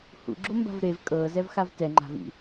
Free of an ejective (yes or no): no